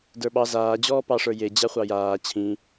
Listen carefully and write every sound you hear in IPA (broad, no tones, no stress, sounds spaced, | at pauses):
d ə˞ ɓ ɑ z aː d͡ʑ ɔː p ɑ ʂ ə˞ j e d͡ʑ a χʷ ɑ j aː t͡ɕʰ ĩ